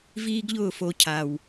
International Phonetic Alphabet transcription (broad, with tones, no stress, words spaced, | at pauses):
viː˦ɡʎʊː˦˨ fo˧cʰa˨w